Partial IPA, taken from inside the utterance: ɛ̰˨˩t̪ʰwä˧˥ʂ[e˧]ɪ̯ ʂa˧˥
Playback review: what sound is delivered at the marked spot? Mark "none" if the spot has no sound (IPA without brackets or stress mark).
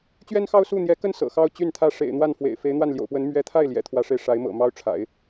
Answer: e˧